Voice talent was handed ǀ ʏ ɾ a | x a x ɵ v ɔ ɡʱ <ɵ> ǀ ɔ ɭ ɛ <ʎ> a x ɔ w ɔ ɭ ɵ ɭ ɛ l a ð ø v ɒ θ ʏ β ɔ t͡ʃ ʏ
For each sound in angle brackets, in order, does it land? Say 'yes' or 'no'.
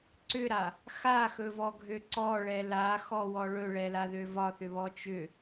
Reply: no, no

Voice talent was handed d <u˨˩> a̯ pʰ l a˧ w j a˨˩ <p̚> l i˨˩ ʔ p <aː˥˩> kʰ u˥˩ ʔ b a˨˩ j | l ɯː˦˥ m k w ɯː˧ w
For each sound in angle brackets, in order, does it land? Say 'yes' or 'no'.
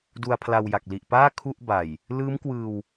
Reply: no, no, yes

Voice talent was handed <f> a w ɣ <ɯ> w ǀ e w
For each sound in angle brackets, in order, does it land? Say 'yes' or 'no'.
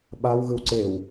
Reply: no, yes

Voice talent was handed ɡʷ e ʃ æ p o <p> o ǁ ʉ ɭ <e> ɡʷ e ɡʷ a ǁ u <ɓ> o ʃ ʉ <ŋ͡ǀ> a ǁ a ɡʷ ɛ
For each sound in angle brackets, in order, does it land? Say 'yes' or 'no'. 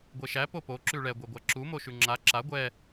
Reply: yes, no, no, no

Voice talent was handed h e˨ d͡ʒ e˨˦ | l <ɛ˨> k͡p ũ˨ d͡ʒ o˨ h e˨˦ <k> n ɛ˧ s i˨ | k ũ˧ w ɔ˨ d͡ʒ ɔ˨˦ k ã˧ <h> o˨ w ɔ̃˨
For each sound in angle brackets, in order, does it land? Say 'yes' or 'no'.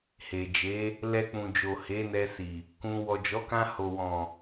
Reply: no, no, yes

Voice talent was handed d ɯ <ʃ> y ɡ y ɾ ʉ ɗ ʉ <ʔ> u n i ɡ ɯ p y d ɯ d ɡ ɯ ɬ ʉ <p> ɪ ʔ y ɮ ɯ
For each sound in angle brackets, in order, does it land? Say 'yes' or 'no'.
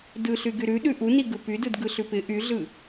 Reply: no, yes, yes

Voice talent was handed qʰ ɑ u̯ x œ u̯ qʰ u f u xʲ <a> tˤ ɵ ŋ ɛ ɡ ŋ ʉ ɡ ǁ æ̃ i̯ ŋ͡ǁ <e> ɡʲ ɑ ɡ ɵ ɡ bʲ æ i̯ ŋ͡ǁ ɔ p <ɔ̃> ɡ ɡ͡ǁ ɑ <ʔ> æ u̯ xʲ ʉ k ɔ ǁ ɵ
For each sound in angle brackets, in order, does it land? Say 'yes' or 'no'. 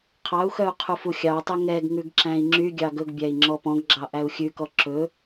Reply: no, no, yes, yes

